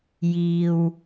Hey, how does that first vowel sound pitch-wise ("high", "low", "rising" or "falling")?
low